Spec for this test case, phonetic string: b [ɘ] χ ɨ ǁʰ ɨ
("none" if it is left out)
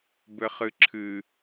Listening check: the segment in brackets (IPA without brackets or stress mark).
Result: ɘ